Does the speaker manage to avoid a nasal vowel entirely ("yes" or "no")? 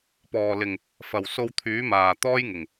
yes